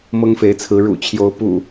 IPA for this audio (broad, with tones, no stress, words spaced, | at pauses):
mɤ˦ŋfe˨˦ɪ̯t͡sʰɹ̩˨˦ ɻṵ˨˩t͡ɕʰjo˨˦ʊ̯ pṵ˨˩